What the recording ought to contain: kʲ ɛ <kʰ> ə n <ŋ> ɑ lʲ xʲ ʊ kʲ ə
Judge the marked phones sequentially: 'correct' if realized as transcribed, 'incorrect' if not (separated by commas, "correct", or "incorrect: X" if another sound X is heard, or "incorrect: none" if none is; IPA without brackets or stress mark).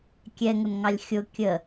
incorrect: ŋ, correct